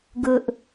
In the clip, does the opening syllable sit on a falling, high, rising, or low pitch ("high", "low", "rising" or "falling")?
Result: high